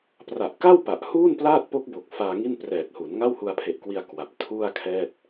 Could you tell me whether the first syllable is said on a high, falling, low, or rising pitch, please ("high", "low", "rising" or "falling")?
low